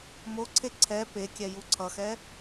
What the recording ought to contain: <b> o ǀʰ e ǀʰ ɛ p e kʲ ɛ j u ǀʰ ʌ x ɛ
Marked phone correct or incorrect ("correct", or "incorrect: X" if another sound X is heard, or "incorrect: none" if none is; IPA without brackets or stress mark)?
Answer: incorrect: m